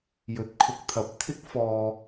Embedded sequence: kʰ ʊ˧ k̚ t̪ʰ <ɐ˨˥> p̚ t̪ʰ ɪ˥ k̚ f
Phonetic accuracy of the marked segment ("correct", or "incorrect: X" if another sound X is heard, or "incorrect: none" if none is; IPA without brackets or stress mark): correct